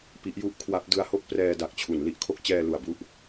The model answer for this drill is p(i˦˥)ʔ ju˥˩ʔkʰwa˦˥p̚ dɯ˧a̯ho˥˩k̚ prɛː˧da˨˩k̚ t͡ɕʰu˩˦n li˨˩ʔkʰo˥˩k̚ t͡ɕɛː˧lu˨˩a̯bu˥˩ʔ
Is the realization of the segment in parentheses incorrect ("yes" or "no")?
no